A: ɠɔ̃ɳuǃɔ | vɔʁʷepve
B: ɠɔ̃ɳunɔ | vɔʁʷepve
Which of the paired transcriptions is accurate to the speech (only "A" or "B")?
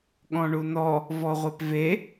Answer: B